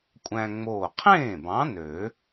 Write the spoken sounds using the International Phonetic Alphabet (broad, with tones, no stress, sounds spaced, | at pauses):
kʷʼ æ̃˧ ŋ͡m oː˧˩ qʰ ẽː˥˩ b ɑ̃˨˥ n ø˨˩˦